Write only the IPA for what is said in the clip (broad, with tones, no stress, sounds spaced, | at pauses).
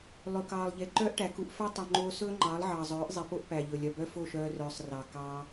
lˠ ɵ˨ k ɑː˨ lˠ ʎ e˨ ǃ œː˦ ʔ ʈ æ˨ k u˧ ʔ f œ˦ tˤ o˨ ŋ͡ǃ oː˧ s ɵː˦ ŋ͡ǃ ɑː˨˦ lˠ ʕ ɑː˨ zˤ œː˨˦ ʔ zˤ e˨ p o˦ ʔ p æ˨ ʎ ɵ˨ lʲ œ˨ b œ˦ f o˦˨ ʃ œː˧ r œː˨ sˤ r ɑ˨ k ɑ˧